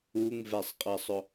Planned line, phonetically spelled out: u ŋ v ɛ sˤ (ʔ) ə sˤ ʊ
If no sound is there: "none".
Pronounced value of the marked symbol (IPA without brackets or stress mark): qʼ